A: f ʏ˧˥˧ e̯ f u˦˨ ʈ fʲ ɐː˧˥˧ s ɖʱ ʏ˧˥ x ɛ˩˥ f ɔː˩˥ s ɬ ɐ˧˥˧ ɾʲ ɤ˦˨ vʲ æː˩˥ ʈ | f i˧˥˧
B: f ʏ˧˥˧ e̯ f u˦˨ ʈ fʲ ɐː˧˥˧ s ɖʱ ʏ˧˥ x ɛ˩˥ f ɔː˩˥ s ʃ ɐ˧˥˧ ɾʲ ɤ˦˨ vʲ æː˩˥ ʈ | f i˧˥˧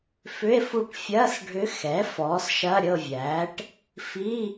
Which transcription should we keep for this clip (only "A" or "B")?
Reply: B